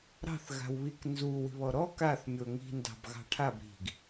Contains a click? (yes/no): no